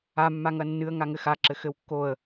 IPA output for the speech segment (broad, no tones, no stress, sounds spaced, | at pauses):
a mː a ŋ ɐ nː ɨ ə̯ ŋ a ŋ ɘ x a ǁ ɘ x ɘ w kː o ə̯